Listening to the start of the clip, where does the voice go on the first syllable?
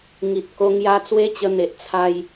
low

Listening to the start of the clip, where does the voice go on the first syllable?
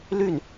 falling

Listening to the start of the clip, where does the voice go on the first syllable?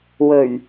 low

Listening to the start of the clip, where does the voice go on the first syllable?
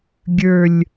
falling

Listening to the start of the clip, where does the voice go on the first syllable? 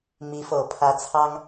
rising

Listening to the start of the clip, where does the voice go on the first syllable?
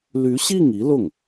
rising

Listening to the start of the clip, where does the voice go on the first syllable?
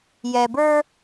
low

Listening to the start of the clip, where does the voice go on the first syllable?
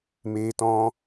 high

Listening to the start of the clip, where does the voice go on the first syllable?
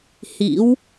rising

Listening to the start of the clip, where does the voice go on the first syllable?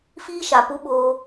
high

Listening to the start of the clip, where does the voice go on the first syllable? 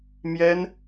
high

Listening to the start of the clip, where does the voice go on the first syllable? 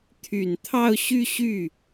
low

